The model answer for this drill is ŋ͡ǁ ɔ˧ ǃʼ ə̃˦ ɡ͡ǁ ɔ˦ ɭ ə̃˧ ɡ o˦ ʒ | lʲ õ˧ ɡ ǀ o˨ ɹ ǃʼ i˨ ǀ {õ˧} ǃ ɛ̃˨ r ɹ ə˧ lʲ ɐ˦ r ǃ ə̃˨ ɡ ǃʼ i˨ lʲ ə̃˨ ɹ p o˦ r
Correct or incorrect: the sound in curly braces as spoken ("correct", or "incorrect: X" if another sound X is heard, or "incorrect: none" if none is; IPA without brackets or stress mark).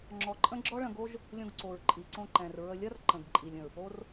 correct